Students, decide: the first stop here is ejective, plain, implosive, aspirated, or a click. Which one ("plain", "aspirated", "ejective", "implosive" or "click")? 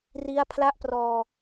aspirated